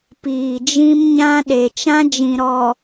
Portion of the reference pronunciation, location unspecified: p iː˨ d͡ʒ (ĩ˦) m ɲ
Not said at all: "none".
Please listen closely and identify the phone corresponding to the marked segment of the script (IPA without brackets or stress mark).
ĩ˦